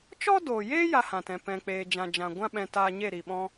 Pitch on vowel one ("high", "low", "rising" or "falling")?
high